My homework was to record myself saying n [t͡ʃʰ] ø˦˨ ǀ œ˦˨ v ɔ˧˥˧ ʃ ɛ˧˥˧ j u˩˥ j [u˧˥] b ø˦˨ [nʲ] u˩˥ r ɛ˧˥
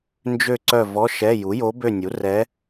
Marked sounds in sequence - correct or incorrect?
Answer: incorrect, incorrect, correct

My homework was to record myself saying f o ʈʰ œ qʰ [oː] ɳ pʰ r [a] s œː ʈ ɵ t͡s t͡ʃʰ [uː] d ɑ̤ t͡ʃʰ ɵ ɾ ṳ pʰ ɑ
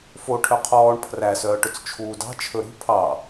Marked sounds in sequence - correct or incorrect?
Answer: incorrect, incorrect, correct

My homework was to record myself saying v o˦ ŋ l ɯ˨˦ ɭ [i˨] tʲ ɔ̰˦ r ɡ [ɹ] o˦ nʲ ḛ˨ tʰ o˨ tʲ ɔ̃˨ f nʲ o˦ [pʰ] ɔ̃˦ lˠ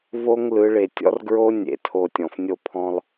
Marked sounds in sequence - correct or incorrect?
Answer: incorrect, correct, correct

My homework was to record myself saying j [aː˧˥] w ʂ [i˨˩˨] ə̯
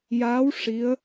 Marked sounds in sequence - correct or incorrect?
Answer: correct, incorrect

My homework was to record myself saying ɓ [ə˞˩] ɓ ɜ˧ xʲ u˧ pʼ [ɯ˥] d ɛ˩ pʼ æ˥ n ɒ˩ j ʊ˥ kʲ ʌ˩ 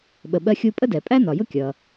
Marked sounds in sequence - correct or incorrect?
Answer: incorrect, incorrect

